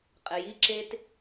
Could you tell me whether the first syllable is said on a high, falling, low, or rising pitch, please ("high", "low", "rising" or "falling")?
low